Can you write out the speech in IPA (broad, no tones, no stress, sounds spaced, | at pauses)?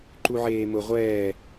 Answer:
ǃ u ʕ eː m ʊ ʁʷ ɛː